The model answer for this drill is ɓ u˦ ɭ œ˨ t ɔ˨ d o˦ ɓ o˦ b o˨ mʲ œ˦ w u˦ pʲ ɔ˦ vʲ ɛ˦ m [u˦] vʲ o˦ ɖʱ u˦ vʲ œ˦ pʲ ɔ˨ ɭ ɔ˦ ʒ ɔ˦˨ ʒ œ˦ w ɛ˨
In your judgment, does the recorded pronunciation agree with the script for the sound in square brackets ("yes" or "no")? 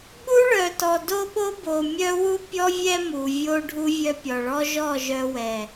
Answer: no